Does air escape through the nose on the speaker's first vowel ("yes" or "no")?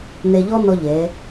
no